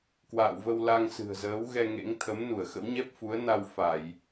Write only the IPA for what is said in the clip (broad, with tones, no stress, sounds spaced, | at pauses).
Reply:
k w a̰ː˧˨ w v ə˧ w l a˧ ŋ s ɨ̤˨˩ ə̯ z əː˨˦ w ɣ ɛ˧ ŋ ḛ˧˥ ŋ t̪ʰ ə˨˦ m n u˧˩ ə̯ x ə̰˧˥ w ɲ ɛ˦˥ p̚ f u˨˦ ə̯ n a˧ w f a˧˩˨ j